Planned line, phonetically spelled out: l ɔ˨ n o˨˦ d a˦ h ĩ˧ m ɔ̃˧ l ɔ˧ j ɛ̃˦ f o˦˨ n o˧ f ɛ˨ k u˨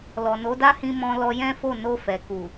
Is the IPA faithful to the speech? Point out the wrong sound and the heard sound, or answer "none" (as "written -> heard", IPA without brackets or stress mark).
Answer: none